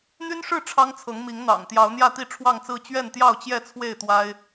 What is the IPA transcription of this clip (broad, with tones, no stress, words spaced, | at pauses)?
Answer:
n̪y˦nʂɻ̩˥˨ ʈ͡ʂʰɑ˦ŋt͡sʰɤ˨˦ŋmi˨˦ŋ n̪ɑ̰˨˩ŋ t̪jɑ˨˦ʊ̯n̪jä˥˨t̪i˥˨ ʈ͡ʂʰwɑ˥˨ŋt͡sɹ̩˥˨ t͡ɕɥɛ˥˨nt̪jɑ˥˨ʊ̯t͡ɕjɛ˥˨t͡sʰwe˥˨ɪ̯ t̪wa˦ɪ̯